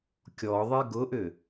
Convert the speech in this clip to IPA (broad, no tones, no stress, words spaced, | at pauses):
kʲɔðˤi ɡʊʔʏ